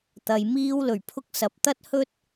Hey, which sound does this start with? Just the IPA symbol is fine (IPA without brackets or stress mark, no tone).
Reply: t̪